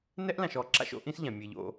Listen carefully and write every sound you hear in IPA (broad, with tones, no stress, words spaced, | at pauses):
nɛ˥ʔlã˨ʃɔ˨ ǁa̰˦ʃo̰˦ʔĩ˦s ʎã˩mʲe˨ʎo̰˦